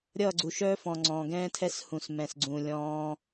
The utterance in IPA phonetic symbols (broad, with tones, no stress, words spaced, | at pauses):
ɾʲʌː˦˨ɡ͡ǀu˨ʃœː˦fɔ̃˨ ŋ͡ǀɔ̃ː˨ɡɛ̃ː˦tʰɛ˦s hũ˨s mɛ̃˨sɡ͡ǀũː˨lʲɔ̃ː˧